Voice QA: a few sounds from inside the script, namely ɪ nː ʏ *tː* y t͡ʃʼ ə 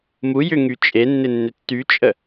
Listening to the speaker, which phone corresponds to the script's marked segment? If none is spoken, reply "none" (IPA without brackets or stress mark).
tː